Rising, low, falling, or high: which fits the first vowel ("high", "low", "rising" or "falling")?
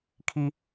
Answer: high